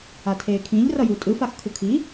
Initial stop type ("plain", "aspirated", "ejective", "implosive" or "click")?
aspirated